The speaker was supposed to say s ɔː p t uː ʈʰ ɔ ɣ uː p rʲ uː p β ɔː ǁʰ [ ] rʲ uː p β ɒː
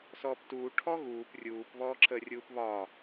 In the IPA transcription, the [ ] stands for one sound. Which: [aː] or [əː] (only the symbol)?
əː